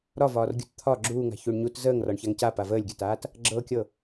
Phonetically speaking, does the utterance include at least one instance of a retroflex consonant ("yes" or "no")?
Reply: yes